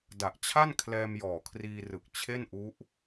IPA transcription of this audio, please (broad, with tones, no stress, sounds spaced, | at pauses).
d a˨˩ ʔ t͡ɕʰ a˥˩ n kʰ l ɛː˧ m j ɔː˨˩ kʰ r iː˧ r ɯ˨˩ k̚ t͡ɕʰ e˥˩ n ʔ u˦˥ ʔ